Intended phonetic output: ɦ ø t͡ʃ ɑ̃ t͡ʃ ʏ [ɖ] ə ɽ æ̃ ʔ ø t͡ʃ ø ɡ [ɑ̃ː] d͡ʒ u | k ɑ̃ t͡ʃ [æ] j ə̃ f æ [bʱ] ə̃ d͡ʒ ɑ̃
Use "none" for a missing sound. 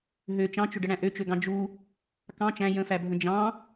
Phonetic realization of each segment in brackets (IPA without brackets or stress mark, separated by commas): ɖ, ɑ̃, æ̃, bʱ